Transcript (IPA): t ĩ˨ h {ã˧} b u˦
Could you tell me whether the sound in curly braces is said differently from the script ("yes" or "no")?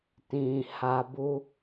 yes